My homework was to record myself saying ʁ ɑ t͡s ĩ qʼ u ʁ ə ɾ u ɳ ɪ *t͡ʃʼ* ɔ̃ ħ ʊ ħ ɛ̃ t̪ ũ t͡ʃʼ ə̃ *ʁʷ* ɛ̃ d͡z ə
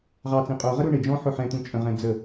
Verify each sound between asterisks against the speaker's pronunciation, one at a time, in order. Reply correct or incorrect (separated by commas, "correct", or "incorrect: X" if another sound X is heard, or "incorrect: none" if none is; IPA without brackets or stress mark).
incorrect: d͡ʒ, incorrect: ʁ